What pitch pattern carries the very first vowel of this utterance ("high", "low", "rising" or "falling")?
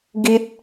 high